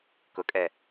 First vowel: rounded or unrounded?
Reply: rounded